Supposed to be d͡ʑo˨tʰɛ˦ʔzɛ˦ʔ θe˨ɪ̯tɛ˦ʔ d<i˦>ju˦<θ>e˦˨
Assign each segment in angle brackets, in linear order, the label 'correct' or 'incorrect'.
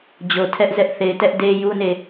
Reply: incorrect, incorrect

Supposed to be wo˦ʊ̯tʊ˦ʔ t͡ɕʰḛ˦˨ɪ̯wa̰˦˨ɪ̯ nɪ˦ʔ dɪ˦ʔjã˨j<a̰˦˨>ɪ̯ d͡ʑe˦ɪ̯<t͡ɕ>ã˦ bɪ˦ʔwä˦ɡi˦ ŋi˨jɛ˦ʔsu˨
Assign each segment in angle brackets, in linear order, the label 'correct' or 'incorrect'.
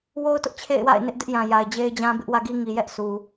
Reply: incorrect, incorrect

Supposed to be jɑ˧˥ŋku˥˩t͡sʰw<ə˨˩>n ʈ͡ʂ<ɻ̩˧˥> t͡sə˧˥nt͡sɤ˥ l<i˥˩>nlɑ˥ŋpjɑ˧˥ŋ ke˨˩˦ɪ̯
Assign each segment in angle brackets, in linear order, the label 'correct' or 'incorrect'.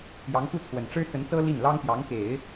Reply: correct, incorrect, correct

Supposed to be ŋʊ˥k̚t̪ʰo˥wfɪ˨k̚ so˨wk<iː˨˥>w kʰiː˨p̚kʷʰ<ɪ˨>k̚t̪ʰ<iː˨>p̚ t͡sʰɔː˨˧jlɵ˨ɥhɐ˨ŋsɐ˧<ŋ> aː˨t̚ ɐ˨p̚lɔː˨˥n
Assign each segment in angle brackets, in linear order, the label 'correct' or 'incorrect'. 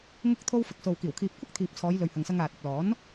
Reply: incorrect, incorrect, correct, correct

